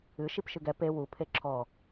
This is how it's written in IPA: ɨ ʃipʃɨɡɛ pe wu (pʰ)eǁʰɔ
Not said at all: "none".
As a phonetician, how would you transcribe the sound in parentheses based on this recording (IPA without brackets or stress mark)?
pʰ